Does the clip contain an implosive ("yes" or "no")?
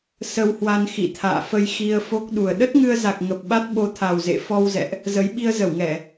yes